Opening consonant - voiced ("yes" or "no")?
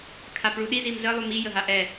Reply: no